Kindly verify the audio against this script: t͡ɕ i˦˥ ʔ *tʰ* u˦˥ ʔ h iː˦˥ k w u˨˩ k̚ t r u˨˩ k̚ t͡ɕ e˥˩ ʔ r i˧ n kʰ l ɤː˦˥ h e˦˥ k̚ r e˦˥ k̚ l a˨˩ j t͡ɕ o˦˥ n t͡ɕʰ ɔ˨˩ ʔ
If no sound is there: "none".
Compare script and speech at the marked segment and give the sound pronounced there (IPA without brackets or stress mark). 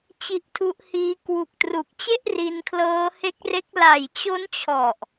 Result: tʰ